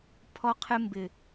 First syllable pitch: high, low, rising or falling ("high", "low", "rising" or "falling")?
high